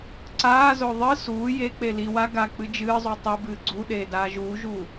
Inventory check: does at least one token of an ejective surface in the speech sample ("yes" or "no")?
no